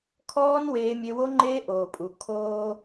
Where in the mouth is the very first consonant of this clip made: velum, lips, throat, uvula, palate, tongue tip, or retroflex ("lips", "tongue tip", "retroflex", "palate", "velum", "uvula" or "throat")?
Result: velum